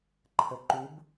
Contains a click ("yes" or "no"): yes